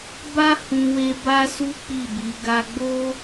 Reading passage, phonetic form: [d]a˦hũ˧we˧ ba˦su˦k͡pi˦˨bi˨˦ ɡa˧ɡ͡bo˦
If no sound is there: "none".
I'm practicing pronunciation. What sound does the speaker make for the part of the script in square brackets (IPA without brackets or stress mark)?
b